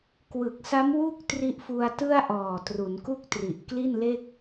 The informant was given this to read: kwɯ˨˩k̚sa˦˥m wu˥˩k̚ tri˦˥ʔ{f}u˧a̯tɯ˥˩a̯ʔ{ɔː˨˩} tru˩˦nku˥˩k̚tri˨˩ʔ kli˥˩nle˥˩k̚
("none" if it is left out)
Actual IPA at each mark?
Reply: f, ɔː˨˩

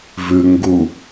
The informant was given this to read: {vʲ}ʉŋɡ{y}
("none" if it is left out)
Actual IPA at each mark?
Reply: v, u

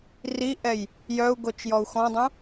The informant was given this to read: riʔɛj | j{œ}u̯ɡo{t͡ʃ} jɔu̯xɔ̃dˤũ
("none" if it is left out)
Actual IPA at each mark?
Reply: œ, t͡ʃ

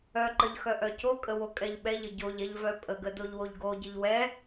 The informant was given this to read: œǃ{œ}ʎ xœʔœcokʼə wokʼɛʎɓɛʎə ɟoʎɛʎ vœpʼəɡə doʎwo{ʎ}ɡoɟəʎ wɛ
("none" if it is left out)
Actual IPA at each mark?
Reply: ə, ʎ

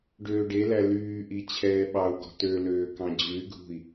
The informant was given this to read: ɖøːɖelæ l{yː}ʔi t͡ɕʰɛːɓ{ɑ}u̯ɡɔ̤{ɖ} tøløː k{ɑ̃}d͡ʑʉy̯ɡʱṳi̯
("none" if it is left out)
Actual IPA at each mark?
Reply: yː, ɑ, none, ɑ̃

